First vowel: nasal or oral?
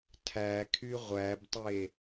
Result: oral